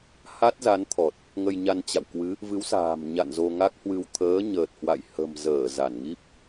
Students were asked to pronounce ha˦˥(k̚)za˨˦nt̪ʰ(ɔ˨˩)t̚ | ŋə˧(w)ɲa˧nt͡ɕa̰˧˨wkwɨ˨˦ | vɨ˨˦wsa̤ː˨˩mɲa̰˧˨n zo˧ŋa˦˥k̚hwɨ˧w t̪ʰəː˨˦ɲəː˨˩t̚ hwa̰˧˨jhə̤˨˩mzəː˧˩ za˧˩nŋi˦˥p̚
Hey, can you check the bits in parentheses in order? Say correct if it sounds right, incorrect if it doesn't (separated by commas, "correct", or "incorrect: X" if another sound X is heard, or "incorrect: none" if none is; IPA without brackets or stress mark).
incorrect: t̚, correct, incorrect: j